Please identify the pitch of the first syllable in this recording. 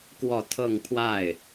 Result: falling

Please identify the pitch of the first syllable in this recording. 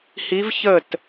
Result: rising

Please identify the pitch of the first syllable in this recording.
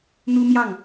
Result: high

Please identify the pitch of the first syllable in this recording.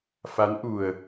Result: rising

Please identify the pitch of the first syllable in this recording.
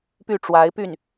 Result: falling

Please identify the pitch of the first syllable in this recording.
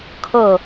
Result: falling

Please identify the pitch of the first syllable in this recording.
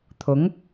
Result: rising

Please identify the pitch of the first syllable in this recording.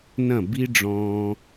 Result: falling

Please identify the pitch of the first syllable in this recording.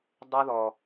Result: high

